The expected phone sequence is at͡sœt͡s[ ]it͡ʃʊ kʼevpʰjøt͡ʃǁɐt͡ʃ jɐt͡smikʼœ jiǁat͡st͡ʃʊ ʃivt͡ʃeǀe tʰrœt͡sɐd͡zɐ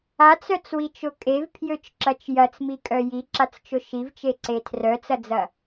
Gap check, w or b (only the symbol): w